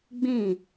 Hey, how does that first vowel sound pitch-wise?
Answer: falling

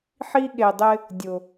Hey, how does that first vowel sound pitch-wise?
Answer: high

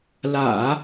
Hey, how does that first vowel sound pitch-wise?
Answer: low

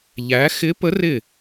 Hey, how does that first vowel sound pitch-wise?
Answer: rising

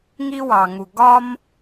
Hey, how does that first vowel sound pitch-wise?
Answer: high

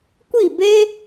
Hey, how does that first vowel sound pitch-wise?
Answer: falling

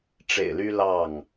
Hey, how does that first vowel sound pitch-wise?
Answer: low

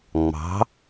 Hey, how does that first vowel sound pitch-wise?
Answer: rising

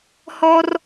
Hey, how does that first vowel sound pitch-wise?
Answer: high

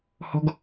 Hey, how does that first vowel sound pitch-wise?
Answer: high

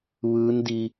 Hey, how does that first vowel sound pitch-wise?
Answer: rising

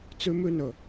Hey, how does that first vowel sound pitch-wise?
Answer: high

